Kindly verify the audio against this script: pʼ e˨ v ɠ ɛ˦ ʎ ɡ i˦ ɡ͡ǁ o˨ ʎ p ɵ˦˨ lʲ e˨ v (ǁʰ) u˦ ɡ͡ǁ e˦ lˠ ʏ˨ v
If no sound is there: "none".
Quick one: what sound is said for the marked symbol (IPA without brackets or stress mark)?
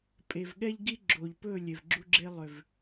ɡ͡ǁ